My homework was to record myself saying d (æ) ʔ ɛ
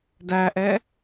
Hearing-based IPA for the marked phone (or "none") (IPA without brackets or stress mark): æ